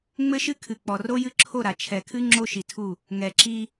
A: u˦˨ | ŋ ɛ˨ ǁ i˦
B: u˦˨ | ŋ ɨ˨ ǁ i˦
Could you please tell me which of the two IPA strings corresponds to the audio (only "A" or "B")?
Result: A